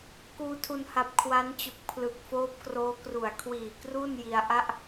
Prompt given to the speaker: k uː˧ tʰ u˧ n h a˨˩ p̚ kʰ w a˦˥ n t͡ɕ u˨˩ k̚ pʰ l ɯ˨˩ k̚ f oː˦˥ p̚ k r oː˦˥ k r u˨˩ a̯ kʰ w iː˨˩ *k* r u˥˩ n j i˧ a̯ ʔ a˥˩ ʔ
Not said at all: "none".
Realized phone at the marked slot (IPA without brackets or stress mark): k